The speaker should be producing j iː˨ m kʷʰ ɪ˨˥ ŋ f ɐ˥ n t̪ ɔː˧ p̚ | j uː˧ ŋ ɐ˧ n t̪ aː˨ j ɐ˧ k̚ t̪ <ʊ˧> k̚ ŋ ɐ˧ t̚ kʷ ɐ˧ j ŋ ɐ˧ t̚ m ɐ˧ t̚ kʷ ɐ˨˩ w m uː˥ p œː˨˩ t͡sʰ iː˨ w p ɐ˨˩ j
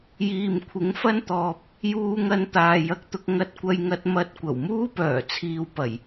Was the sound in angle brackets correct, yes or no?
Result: yes